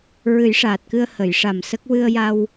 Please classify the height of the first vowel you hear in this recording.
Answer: high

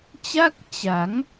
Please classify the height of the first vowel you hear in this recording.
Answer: low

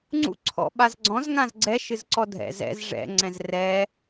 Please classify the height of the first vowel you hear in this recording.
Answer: high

